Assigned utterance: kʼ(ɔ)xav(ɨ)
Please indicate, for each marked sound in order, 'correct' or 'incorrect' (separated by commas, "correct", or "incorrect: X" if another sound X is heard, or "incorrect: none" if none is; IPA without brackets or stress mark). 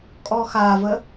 correct, incorrect: ə